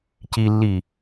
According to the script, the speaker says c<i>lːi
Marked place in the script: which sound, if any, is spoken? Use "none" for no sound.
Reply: i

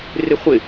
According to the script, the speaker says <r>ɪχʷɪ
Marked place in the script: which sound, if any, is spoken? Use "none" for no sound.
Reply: r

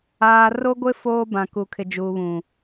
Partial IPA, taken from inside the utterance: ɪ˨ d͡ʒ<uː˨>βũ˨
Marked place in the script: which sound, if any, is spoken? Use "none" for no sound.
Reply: uː˨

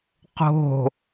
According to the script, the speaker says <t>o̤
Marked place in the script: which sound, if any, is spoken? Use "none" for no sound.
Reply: q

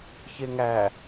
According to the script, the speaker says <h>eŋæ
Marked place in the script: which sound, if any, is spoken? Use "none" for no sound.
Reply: ç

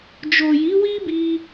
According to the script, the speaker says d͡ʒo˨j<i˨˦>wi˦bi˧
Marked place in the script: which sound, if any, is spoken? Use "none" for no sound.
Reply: i˨˦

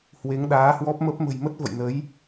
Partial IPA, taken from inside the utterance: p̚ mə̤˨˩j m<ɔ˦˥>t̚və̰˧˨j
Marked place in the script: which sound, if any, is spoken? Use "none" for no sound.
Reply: ə˦˥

